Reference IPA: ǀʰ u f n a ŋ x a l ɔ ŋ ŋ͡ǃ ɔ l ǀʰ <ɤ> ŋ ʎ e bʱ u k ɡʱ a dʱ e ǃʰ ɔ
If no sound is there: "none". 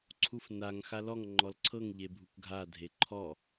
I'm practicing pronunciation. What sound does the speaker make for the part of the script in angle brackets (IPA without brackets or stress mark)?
ɤ